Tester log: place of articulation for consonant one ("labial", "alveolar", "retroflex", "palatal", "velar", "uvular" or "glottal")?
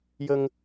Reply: palatal